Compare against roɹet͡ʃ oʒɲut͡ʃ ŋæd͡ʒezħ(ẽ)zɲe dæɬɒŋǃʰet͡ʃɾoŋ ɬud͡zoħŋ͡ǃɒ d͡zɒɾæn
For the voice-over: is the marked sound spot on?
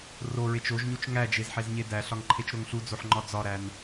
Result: no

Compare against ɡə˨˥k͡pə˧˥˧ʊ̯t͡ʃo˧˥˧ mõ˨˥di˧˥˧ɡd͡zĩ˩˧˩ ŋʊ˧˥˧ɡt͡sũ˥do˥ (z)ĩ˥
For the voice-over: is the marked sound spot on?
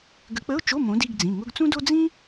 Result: no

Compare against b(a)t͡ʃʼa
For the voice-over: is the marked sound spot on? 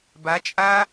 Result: yes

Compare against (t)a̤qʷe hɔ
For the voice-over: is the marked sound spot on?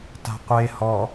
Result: yes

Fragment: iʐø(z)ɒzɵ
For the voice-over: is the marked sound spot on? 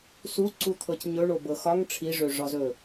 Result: no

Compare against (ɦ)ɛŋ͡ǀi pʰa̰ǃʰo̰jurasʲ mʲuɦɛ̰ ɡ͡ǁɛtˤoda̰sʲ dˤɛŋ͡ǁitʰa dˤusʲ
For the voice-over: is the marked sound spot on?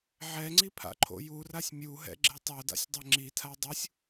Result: no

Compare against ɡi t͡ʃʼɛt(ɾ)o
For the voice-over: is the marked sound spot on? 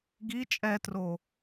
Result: no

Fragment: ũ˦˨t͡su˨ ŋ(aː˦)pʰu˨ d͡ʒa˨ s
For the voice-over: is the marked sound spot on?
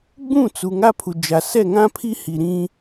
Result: no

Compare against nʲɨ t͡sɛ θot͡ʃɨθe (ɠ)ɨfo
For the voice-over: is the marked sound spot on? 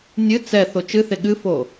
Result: yes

